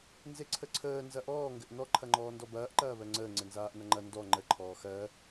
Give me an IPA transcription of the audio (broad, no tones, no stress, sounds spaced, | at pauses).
n z e ǀʰ ə ǀʰ əː n z ɐ ʔ ɔː ŋ ɡ ɘ ʔ n ɔ ǃʰ ɐ ŋ͡ǃ ɔː n d ɔ b ɐː ʔ ǃ ɐː β ɜ ŋ͡ǀ əː ŋ͡ǀ ɘ n z aː ʔ n ɐ ŋ͡ǃ ɐ n d ɔ ŋ͡ǃ ə ǃʰ ɔː x ɜ